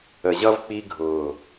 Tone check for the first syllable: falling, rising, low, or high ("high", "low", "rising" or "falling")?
low